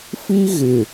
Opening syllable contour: high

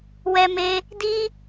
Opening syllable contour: high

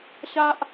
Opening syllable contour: low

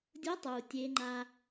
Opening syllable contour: rising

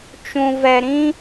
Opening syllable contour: low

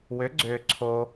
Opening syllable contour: rising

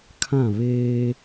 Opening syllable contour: falling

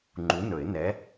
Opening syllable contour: rising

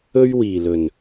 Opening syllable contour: high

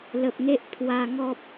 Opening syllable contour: low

